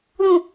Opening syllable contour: low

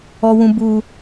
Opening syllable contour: high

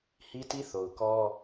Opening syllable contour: high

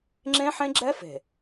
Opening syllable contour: high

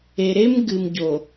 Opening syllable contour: low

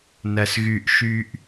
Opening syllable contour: low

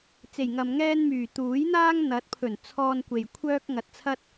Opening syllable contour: low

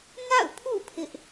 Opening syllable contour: falling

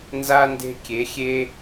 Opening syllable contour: high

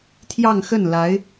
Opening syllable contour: falling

